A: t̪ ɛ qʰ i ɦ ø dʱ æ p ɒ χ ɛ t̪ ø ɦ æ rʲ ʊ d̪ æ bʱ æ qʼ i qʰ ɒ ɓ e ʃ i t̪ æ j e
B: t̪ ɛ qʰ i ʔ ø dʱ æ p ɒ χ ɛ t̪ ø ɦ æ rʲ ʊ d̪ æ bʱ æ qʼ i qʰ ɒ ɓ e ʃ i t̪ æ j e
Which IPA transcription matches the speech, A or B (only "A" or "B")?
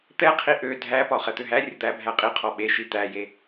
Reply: B